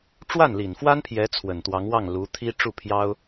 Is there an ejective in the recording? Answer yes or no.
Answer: no